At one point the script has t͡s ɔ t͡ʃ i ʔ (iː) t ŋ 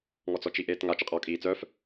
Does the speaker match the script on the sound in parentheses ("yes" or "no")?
no